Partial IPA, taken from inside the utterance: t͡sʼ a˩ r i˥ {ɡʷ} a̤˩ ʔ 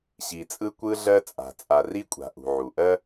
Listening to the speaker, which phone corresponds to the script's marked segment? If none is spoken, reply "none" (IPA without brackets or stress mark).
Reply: kʷʼ